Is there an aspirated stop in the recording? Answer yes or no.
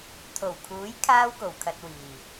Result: yes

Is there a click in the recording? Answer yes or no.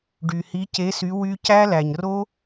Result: no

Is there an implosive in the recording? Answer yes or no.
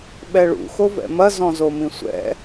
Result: yes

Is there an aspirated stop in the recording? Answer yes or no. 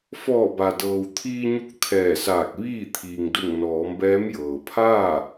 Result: yes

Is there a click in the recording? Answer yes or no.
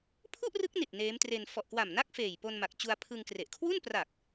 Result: no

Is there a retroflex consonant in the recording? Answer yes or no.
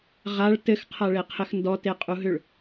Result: yes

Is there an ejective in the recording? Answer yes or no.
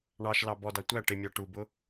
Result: no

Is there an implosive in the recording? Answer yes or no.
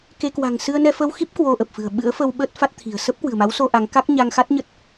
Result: yes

